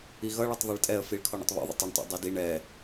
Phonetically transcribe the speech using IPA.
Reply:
i ɣ ʌ ɭ ɛ tˤ ðˤ ɑ ɭ tʼ ɛ ə̯ f i ɭ kʰ ɔ ɳ ə̰ tˤ β ṵ ðˤ ə̰ tˤ ə ɳ tˤ ṵ dˤ i d i ɳ ɛ

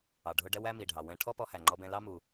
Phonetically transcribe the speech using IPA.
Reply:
ɑ˩ ɖʱ ʊ˧ ɖ ɛ˥ w æ˥ m i˩ ɖʱ ɑ˩ w ɛ̃˧ ʈʰ ɔ˥ p ɔ˧ h æ˩ ŋ͡ǃ ɔ˧ b ɛ̃˧ l ɑ˥ m u˩

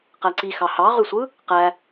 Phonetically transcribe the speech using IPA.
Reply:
q æ ǀ i x ɑ h ɑ ʁ y sʷ ɯ | q æ

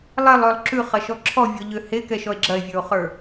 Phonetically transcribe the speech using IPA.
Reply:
lˠ e lˠ ø lˠ ǁ ʉ χ ɐ ʃ ɔ ǁʰ ɔ vʲ ɔ ʎ ø h e k ɛ ʃ ɔ e̯ ɡ͡ǁ ɐ e̯ vʲ ə˞ o̯ χ ə˞

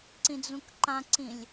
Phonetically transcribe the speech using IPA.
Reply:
ǀ ĩ d͡z ũ k ǃ ã ǀ ĩ lʲ

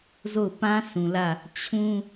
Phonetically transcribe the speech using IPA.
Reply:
z o˦˨ ʊ̯ p ã˦ s ũ˨ l ä˦˨ | t͡ɕʰ ũ˦

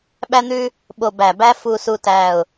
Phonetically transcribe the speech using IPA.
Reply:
ɓ æ˥ n̪ ʉ˥ | ɓ o˧ b æ˧˩ b æ˥ f u˧ s u˧ t æ˧˩ ʊ̯

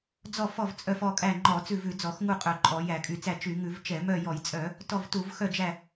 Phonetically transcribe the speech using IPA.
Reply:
d͡z ɔ˦˨ f ɔ˦˨ v t͡sʼ œ˦˨ f ɔ˦˨ kʼ æ˦˨ ŋ͡ǃ ɔ˧˩˧ t͡s ʉ˦˨ v ʉ˧˩˧ d͡z ɔ˧˩˧ x ŋ u˦˨ qʼ œ˧˩˧ ǃʼ ɔ˧˩˧ j æ˧˩˧ kʼ y˧˩˧ t͡s æ˦˨ t͡ʃ y˧˩˧ ŋ ʉ˧˩˧ v t͡ʃ ɛ˧˩˧ m œ˦˨ j ɔ˧˩˧ j t͡sʼ œ˧˩˧ | t ɔ˦˨ v t u˧˩˧ v x œ˦˨ d͡ʒ æ˦˨

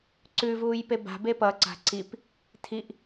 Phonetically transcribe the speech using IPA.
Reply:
ǀ ʉ v uː j p e b a̤ b e p ʌ ǀ a̤ ǀ i p | tʰ i ʔ

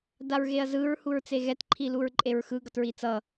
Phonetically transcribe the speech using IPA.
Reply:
d a ɹ ɣ e ɐ̯ z ɯ ɹ h u ɹ t͡s e ɣ ɛ t ǃʰ i l u ɹ ǃʼ e ɹ x ɯ ɡ ʌ t ɹ i t͡s ʌ

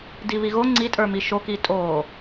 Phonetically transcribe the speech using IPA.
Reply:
d i β i ɣ o ŋ͡ǀ i tʼ ə˞ m i ʃ o k i tʼ oː

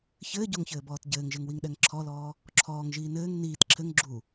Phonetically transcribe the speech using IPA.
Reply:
ç ɘː ɟ o ŋ ç ɘː b ɔː t ɟ ɘː ŋ ʒ ɘ ŋ w i ŋ ɗ ɛ ŋ ǁʰ ɔ l ɔː | ǁʰ ɔː ŋ ʒ iː n ɘː ŋ n iː t ǁʰ ɘ ŋ ɡ͡ǁ u

